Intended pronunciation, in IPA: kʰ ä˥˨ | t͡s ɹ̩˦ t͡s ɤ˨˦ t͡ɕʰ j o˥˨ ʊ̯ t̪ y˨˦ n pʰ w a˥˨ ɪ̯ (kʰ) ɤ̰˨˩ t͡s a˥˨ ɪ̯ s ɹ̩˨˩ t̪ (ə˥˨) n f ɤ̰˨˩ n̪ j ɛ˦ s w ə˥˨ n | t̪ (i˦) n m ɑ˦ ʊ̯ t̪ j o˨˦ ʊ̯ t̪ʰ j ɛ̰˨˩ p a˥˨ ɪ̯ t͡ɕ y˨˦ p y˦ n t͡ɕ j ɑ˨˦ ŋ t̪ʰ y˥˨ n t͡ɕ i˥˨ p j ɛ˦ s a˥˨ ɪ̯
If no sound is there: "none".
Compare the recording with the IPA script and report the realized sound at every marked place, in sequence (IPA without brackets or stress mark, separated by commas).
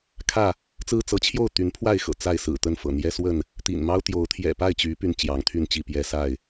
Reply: x, ə˥˨, ḭ˨˩